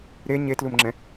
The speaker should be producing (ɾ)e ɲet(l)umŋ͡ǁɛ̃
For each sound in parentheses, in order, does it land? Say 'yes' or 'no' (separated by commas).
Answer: yes, yes